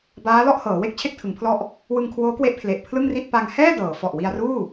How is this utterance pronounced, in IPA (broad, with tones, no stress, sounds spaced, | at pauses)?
b aː˦˥ l ɔ˥˩ ʔ h ɤː˩˦ w e˥˩ k̚ t͡ɕʰ e˥˩ k̚ tʰ ɯ˩˦ ŋ pʰ l ɔ˥˩ ʔ | w ɯ˧ ŋ kʰ w oː˦˥ k w e˦˥ ʔ pʰ l e˨˩ ʔ pʰ l ɯ˥˩ ŋ r i˥˩ t̚ p a˧ ŋ h ɛː˥˩ d ɤː˩˦ f ɔ˨˩ ʔ w i˧ a̯ r uː˥˩